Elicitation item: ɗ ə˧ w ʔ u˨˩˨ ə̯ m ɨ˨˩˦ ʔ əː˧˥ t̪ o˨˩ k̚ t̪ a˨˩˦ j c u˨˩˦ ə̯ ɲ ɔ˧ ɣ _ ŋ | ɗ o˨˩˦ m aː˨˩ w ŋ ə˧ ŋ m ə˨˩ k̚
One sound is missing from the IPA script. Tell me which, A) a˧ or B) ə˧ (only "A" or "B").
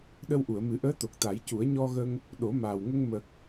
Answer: B